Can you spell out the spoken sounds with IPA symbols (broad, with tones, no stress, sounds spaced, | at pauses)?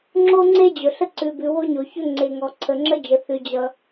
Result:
ŋ͡ǁ o˥ ŋ͡ǀ e˥ d͡ʑ ɵ˩ ɬ ə˥ ǀ ʉ˩ b ʉ˩ w o˥ ɲ o˩ ç ɵ˥ ŋ͡ǀ e˩ ŋ ɔ˩ ǀʰ ə˩ ŋ͡ǁ ə˥ d͡ʒ ə˩ θ ʉ˩ d͡ʑ ʌ˩